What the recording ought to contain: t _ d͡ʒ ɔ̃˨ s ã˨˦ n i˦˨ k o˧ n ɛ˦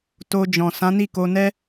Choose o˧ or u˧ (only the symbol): o˧